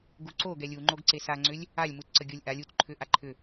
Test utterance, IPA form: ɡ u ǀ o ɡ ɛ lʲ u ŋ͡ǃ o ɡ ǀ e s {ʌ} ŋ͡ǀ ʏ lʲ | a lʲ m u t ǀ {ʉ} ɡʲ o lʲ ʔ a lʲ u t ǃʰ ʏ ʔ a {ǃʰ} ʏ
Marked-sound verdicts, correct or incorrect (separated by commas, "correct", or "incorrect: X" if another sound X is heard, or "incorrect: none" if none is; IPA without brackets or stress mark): incorrect: a, incorrect: ə, correct